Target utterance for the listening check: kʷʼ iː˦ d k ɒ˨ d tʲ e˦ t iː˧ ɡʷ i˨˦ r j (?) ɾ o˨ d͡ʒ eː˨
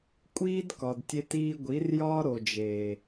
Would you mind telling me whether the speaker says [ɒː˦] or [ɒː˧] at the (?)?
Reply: ɒː˦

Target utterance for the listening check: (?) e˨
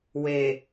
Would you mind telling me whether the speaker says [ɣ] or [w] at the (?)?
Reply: w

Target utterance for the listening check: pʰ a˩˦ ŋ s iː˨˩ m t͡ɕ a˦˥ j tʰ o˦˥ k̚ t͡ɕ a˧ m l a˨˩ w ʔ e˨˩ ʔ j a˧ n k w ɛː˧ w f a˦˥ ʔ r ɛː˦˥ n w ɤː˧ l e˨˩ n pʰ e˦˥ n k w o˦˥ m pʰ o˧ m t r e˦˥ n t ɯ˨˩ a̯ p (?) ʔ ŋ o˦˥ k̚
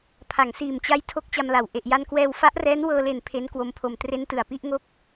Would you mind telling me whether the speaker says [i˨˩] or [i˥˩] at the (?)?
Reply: i˥˩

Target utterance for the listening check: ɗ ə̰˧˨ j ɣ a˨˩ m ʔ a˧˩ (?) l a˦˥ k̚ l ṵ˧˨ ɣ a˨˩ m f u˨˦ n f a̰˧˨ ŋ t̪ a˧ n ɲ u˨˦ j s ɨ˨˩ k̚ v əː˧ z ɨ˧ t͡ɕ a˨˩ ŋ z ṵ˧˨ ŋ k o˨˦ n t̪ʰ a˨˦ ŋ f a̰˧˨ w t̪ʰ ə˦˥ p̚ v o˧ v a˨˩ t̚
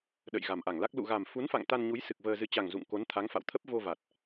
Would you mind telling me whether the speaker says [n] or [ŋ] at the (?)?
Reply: ŋ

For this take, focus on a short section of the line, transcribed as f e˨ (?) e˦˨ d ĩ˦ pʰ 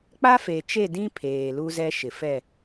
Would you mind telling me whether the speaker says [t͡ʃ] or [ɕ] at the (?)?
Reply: t͡ʃ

